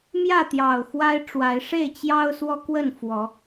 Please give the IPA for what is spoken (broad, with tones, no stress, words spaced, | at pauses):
mjä˥˨t̪jɑ˨˩ʊ̯xwa˦ɪ̯ʈ͡ʂwa˨˦ɪ̯ ʂe˥˨ɪ̯t͡ɕjɑ˦ʊ̯ swɔ˦kwə˥˨n fwɔ˨˦